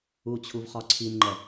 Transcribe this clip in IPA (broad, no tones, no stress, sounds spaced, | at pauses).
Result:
u t͡ɕʰ u v χ ɒ ǀʰ i n ŋ͡ǃ ɛ